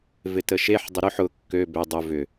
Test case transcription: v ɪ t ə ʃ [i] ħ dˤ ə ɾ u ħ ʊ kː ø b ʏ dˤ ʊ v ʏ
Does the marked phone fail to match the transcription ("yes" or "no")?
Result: yes